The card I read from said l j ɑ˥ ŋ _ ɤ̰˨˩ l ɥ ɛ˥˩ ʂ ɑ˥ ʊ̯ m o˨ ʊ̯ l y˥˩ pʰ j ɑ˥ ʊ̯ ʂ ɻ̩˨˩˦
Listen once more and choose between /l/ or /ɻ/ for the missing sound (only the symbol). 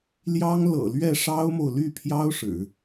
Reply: l